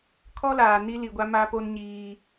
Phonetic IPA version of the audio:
kʰ ɔ˦ l aː˨ n i˦ l i˨ ɡʷ a˦ m a˦ p o˦ n ɲ iː˦

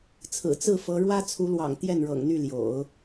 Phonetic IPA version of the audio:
t͡sʰ ɹ̩˨˩ t͡s ɹ̩˥˩ f ɤ˧˥ ɻ w ä˥ t͡sʰ u˧˥ l w ɑ̰˨˩ ŋ t̪ j ɛ˥˩ n ɻ ɤ̰˨˩ ŋ n̪ y˥˩ l j o̰˨˩˦ ʊ̯

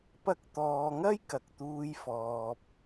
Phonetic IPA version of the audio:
p ɐ˧ k̚ t̪ ɔː˨ ŋ ɐ˥ j k ɐ˨ k̚ t̪ uː˧ j f ɔː˨ p̚

